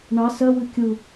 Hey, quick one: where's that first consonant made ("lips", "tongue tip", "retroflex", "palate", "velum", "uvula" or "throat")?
retroflex